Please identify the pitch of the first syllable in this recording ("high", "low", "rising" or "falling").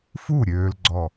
falling